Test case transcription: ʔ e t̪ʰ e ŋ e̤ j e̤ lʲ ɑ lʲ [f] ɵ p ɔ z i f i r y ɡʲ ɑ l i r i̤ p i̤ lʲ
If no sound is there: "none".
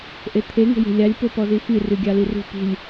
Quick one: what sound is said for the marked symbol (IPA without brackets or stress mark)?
p